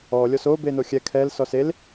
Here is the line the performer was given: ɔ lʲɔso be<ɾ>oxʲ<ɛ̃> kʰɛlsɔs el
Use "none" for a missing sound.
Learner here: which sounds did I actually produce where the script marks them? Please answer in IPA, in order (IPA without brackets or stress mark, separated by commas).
n, ɛ